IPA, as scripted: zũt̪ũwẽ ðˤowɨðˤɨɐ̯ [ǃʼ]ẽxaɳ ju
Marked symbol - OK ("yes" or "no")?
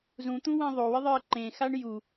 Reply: no